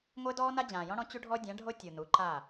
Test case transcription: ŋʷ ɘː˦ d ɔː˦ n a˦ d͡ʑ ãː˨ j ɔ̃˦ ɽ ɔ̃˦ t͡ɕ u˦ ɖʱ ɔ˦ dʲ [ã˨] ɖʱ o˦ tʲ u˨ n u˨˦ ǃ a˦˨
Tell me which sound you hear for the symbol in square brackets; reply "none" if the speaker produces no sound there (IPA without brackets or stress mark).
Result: ã˨˦